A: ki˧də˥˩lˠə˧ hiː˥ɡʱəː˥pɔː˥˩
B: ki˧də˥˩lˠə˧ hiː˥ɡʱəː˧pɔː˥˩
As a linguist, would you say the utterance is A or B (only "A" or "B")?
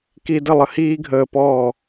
B